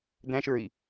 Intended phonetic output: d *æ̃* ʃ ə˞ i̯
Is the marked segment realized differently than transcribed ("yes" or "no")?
no